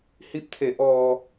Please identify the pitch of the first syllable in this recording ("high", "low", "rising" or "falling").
rising